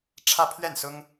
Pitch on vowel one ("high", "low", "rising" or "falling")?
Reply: falling